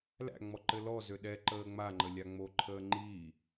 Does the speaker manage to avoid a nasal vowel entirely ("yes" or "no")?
yes